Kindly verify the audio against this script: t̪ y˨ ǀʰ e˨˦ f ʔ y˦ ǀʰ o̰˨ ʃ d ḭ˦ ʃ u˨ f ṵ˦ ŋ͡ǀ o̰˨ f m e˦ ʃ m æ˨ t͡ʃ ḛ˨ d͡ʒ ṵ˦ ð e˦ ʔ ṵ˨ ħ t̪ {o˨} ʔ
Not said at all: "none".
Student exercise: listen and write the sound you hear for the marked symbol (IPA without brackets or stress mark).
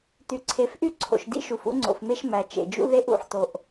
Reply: o˨